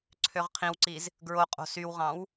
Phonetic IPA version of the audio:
ǀʰ ø ʁ qʰ ĩ w ǀ i z | ɡ ɹ o qʼ o̤ s y w ʁ ɑ̃ w

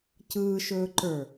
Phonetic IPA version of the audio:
c ɯː ʃ ɵː ǃ ə˞

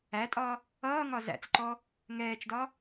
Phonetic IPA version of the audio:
æ tʼ ɒ | ʌː ŋ ɒ z æ̰ t͡s ǃ ɔ | ŋ ɛː t͡ʃ d ɒ

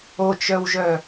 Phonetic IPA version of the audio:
o t͡ʃ œ w ʒ œ

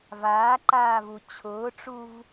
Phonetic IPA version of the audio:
v aː ǃ aː v u t͡ɕʰ ʊː ʈ͡ʂ u v

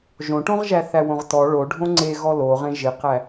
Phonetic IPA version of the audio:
ʒ õ ʈ õ ʁ ʒ æ θ æ w õ ʁ t ɔ ɭ o ɖʱ õ ŋ͡ǀ e ɣ ɔ l o ʁ ẽ ʒ ɪ q æ

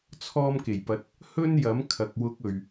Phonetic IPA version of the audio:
t͡sʰ ɔː˥ m k e˨˩ j p ɐ˧ t̚ | h ɵ˥ n j ɐ˨˥ m kʰ ɐ˨ k̚ w ʊ˧ k̚ ɵ˨ ɥ

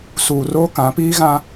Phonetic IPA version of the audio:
s uː˨ r oː˦ k ã˨˦ p iː˦ ɣ ã˦

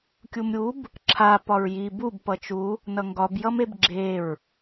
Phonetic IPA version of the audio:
kʲ u m ɾʲ u b | ǁʰ a p ɒ ɹ j i b u b p ʌ t͡ʃ u | n ʌ ŋ ɡ ɒ b j ʌ m e b ɡ͡ǁ e ɹ

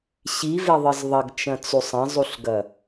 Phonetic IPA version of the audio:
ɕ i v e ðˤ ɨ z ðˤ ɐ ɡ t͡ʃ ɐ̃ t͡s u sˤ ɐ̃ zˤ u ɬ ɡ ɐ

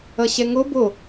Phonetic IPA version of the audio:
ʌ ɕ ɛ ŋ o b o

